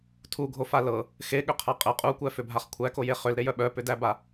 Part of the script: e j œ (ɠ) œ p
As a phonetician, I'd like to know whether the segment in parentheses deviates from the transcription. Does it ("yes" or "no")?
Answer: yes